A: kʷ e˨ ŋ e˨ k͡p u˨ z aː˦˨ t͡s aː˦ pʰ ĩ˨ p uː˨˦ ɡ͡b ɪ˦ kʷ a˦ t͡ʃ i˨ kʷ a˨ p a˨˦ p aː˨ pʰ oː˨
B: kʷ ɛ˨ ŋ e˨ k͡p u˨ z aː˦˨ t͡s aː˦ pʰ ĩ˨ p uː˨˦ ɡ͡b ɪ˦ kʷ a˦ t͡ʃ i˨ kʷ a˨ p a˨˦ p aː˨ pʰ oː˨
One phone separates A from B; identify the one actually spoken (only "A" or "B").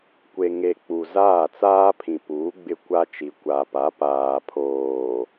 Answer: A